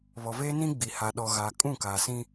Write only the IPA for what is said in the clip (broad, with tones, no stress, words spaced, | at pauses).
βɔ˨veː˦nĩ˦ ɡ͡bi˨ha˨ ɗɔ˨ɣaː˨kʼũ˦˨ ka˨sĩ˦